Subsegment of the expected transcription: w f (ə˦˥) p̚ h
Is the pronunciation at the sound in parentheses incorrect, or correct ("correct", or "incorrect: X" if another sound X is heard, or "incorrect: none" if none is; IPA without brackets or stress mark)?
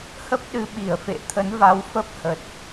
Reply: correct